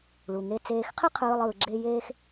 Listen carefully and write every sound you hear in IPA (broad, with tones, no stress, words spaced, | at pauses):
ɭu˩ŋe˧ t͡seː˧xqʰɪ˥qʰɯː˧lˠ ɯː˧ɡ͡ǁe˥ jeː˥x